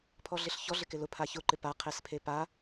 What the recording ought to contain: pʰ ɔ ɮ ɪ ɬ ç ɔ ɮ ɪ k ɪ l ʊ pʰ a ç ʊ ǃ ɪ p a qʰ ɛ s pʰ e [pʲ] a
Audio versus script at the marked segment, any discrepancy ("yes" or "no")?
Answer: yes